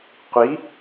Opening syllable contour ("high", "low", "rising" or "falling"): rising